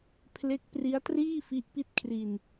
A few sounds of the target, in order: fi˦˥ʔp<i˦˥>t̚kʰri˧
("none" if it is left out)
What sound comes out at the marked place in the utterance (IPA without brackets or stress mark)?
i˥˩